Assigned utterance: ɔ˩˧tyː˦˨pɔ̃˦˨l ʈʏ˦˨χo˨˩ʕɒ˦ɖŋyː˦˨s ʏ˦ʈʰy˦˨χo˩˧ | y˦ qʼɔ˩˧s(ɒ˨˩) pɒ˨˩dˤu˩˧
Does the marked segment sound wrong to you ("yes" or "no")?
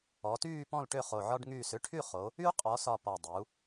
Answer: no